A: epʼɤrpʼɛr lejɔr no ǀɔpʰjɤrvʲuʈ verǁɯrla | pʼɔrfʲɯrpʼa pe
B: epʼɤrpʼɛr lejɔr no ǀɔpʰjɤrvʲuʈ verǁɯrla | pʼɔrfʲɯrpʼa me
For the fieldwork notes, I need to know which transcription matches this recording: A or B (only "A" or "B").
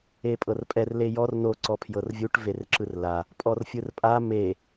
B